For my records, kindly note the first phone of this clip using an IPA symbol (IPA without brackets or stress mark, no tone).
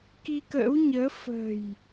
k